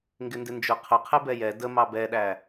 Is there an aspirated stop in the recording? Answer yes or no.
yes